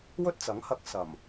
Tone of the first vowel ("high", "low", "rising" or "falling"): high